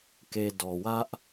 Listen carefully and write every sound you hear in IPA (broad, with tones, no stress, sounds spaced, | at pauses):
k e˨ d ɔ˨ w ä˦ ʔ